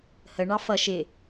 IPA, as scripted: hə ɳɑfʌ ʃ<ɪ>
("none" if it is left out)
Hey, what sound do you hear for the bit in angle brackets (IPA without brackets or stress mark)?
ɪ